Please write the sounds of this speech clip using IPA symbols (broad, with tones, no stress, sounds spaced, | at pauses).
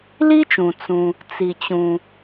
l i˥ t͡ʃ ũ˩ t͡s ũ˩ | t͡s i˩ t͡ɕ ũ˩